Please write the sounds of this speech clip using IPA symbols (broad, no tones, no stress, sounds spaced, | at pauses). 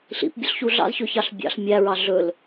ɬ ḭ p bʲ ɵ ɬ ç u ɮ ɑ̰ z ç ɵ ç ɑ ɬ bʲ ɑ̰ ɬ mʲ æ ɹ ɑ ɮ ɵ l